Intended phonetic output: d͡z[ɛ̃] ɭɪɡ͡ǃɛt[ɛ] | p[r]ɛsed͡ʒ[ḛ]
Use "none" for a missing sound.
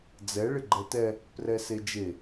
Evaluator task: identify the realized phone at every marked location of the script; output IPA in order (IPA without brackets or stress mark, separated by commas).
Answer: ɛ, ɛ, r, e